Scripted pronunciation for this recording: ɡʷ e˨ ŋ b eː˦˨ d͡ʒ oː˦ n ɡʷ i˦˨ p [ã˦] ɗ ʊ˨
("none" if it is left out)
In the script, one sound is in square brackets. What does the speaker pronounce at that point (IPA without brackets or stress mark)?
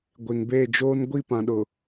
ã˨